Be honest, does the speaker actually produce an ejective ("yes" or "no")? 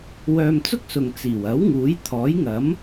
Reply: no